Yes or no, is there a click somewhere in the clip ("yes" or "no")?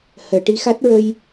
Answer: no